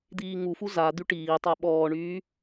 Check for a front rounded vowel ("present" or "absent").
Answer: present